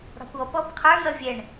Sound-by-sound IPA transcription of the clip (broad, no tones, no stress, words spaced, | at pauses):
ɽɑ̤kʷɔpɔb qʰə˞n̪ʌ vʲɛɳ